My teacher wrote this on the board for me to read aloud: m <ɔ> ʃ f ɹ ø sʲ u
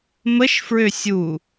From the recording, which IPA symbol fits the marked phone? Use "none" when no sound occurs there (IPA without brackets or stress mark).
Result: ə